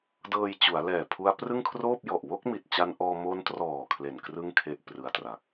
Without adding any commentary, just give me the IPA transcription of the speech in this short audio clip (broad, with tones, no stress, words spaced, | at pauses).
dɤː˧jt͡ɕu˩˦a̯lɛː˨˩ pʰu˦˥a̯prɯ˥˩ŋkʰroː˥˩p̚jɔ˨˩ʔ wo˥˩k̚mi˨˩t̚t͡ɕa˧nʔɔː˧ mo˦˥ntrɔː˨˩ kʰle˨˩n krɯ˥˩ŋ kʰe˥˩ʔ prɯ˧a̯tra˨˩k̚